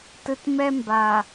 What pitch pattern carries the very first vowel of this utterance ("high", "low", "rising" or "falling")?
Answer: low